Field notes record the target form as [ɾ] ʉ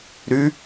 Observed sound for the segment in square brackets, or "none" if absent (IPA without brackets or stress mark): ɾ